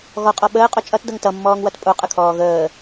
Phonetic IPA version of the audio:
ɣ ɔ qʼ ɔ ɓ əː qʼ o t͡ʃʼ ʌ t d ʌ ŋ t ʌ mː ɔː ŋ w ʌ t pʼ o qʼ ə kʰ ɔː ɣ əː

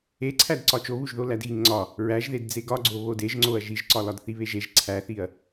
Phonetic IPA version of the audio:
e ǀʰ æ d ǀ ɒ t͡ʃ o β u ʒ ð o l æ d ɣ i ŋ ŋ͡ǀ ɒ | ɹ æ ʒ ð e d d͡z e ɡ ɒ ɡ͡ǀ o β o d e ʒ ŋ͡ǀ o ɐ̯ ʒ i ʒ ǀ ɒ l ɒ d θ i β e ʒ e ʒ ǀʰ æ θ i ɐ̯

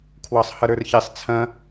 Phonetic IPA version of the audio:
kʰ w ɑ sˤ h ʌ ɾ ə˞ r ç e sˤ t͡sʰ ɐ̃

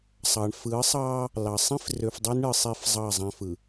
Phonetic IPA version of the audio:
sˤ ɑ˨ ɳ f ɯ˨˦ sˤ ɑ˦ | l ɑ˨ sˤ ĩ˦ f r ø˨ f dˤ ø˦ n ɳ ɯ˨ sˤ i˦ f zˤ ɑ˦˨ zˤ æ̃˦ f ɯ˨

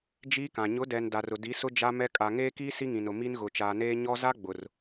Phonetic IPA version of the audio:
d͡ʒ iː˦ k ã˨ ɲ ʊ˨˦ d ɛ˨ n d a˨ r ʊ˨ d i˨˦ s ʊ˦ d͡ʒ a˦ m ɛ˦ kʼ a˨ ŋ eː˦ k iː˦ s i˦ ŋ ĩ˨ n ʊ˨ m i˦ n ɣ ʊ˨ t͡ʃ aː˨ n eː˦ ɲ ɔ˦ z a˦ ɡ͡b ʊ˨ r

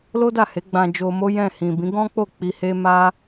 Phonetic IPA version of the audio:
l o˦ d a˦˨ h e˨˦ ɡ͡b ã˧ d͡ʒ o˧ m o˦ j ɛ̃˦˨ h ĩ˨ b ĩ˨˦ ɡ ɔ̃˦ k͡p o˦˨ k͡p i˧ h e˦ m a˦

